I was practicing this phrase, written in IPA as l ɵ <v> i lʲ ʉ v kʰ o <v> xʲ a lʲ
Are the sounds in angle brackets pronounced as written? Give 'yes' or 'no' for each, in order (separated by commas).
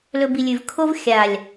no, yes